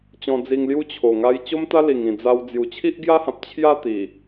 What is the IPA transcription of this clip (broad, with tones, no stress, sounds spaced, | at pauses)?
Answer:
t͡ɕ ɔ̃˧ d͡z i˧ ŋ l j u˥˧ t͡ɕʰ o˨˩ ŋ a˧ j t͡ɕ o˦ m t̪ a˦ l i˨˩ ŋ ĩ˨˩ d͡z a˧ w d͡z j u˨˩ t͡ɕʰ i˦ ʔ ɡ j a˦ h ã˨ p̚ t͡ɕʰ j a˥˧ t̪ i˨˩